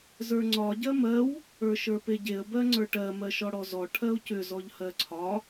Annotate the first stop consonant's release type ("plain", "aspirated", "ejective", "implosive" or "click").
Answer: click